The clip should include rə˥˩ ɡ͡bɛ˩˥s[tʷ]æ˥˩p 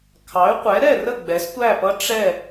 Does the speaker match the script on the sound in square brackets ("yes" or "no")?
yes